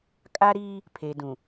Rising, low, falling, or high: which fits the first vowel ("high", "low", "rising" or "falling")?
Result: high